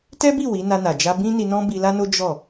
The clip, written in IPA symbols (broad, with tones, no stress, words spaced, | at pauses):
tɛ˦bi˦˨ wi˨˦na˧na˨ d͡ʒa˧bĩ˦ni˧nɔ̃˦ bi˧la˦no˦ d͡ʒɔ˦˨